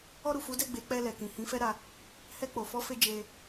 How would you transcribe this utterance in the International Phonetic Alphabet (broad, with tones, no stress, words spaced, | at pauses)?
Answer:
ɔ˧ɾu˨fu˨˦dɛ˦˨ ɡ͡be˨˦k͡pɛ˧lɛ˨ kĩ˨hĩ˨˦fɛ˦ɾa˧ | hɛ˧k͡po˨fɔ˨˦fe˧ d͡ʒe˧